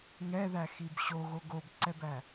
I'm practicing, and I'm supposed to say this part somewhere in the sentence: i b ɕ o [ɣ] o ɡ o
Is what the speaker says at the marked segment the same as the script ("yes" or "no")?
yes